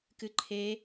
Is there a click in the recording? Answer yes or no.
yes